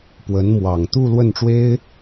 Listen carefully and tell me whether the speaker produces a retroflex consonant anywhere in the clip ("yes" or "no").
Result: yes